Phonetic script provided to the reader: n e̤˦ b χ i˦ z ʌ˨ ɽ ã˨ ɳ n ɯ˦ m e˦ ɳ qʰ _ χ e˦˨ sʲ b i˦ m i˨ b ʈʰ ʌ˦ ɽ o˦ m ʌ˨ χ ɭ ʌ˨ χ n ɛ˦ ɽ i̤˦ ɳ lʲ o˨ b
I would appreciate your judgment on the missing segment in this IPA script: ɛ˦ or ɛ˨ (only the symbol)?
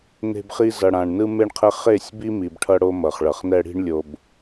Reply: ɛ˦